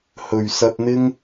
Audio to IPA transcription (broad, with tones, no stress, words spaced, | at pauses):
hɵ˨˩ɥsɐ˧t̚n̪ɪ˥ŋ